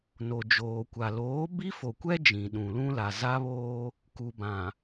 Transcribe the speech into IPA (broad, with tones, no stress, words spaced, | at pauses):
no˨d͡ʒoː˨kʷa˨ loː˨˦bi˦fo˨kʷɛ˦ d͡ʒĩ˨ɗũ˨lũ˦ la˨za˦βoː˦ | ku˨bã˨